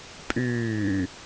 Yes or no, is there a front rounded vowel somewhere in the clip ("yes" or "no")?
yes